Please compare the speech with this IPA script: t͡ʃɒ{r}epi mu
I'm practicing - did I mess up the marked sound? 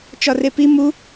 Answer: no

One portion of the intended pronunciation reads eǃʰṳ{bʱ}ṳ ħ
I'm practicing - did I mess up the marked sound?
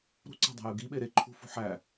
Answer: yes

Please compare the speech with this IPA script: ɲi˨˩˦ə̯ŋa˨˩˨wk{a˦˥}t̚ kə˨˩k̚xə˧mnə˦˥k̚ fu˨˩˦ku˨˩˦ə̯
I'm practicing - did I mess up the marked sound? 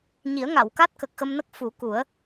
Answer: no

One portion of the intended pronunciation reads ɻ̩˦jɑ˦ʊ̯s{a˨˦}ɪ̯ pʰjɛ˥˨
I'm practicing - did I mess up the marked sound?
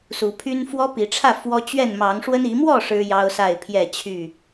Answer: yes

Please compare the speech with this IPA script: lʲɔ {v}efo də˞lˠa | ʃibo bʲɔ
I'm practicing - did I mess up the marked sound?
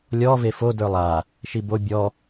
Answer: no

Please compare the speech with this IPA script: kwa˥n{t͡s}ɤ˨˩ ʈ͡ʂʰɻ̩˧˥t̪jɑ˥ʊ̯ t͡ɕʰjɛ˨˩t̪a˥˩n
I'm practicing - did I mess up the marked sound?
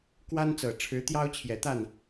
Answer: no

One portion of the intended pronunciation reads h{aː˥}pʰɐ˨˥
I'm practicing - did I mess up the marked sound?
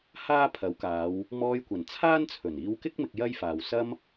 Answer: no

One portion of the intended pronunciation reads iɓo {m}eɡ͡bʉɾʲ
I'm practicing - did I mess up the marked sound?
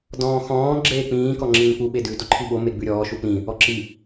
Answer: no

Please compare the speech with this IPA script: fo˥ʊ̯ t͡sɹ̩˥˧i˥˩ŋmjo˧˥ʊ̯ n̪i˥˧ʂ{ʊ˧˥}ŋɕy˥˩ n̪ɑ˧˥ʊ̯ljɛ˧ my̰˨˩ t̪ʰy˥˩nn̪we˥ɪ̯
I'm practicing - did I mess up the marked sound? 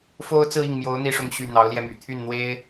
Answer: yes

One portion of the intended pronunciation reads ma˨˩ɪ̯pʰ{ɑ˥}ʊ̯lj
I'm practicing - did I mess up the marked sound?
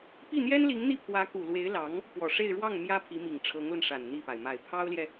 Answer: no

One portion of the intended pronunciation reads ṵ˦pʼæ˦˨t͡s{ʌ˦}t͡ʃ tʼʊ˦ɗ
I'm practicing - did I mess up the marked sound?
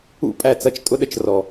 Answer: no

